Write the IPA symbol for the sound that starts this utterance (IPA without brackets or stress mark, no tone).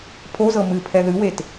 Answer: pʰ